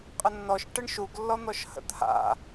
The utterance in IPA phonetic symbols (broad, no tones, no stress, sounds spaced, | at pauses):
qʼ ə nː ɔ ʃ ʈ ə ɳ ʃ u ɡ lː ɔ n̪ ɔ ʃ h ə̰ t̪ʰ a̰